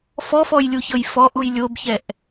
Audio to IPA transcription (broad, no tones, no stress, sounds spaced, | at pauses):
f ɔ f ɔ j lʲ u ç ɤ j f ɔ ʔ u j lʲ o b ç ɛ ʔ